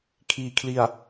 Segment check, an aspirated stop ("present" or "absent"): present